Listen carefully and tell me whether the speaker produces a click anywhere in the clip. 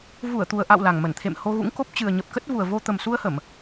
no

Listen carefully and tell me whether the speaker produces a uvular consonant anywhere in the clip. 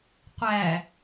yes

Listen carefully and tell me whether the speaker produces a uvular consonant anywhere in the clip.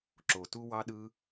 no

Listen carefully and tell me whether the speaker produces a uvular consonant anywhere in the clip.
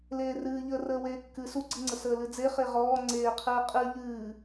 yes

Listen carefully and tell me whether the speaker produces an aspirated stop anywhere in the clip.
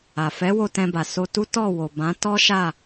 no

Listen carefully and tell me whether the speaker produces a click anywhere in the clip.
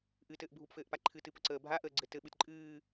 yes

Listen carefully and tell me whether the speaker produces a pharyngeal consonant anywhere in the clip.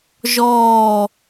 no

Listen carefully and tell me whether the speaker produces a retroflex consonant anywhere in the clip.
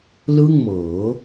no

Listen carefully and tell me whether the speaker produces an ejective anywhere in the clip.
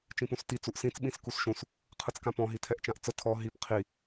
no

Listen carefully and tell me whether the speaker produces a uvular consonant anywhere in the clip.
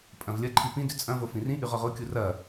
yes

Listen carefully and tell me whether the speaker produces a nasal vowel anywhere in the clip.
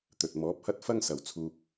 no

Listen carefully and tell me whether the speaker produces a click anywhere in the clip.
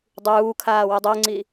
yes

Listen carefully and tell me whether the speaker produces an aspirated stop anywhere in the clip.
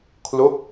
yes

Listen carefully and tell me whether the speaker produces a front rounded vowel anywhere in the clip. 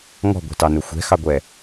no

